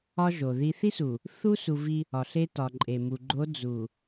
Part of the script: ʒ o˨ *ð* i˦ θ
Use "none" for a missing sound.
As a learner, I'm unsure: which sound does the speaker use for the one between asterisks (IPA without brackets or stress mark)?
ð